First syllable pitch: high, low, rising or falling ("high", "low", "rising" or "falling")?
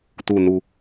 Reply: low